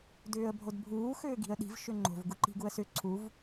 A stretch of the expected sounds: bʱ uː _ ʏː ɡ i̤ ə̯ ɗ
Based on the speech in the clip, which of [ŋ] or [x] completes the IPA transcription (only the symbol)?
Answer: x